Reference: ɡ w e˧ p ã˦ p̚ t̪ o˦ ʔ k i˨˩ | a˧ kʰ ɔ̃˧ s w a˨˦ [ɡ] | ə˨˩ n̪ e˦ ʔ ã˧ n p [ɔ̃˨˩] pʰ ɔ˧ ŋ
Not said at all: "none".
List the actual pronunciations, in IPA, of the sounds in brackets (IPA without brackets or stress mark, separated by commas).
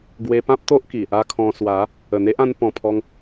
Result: none, ɔ̃˨˩